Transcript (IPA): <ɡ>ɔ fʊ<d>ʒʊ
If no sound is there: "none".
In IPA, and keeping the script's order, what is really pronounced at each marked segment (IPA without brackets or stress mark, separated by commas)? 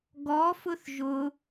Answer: ɡ, θ